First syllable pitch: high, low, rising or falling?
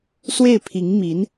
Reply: falling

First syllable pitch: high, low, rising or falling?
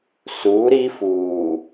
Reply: rising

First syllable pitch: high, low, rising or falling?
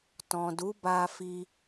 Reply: low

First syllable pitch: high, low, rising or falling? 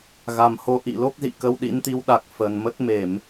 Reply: low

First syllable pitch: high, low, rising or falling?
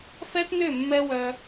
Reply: high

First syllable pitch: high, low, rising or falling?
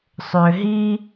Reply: low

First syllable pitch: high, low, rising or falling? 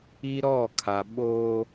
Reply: high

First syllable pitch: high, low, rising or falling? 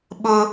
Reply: high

